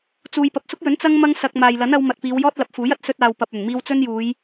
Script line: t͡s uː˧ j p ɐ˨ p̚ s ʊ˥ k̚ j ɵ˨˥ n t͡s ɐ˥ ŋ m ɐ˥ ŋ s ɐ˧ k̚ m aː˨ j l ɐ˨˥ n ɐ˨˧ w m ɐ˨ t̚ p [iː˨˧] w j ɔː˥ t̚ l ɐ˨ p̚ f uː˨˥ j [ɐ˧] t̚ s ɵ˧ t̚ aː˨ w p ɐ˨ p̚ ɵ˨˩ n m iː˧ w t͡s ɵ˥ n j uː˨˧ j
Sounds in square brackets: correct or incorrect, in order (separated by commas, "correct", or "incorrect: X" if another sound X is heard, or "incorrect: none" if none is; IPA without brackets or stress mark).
correct, incorrect: ɐ˥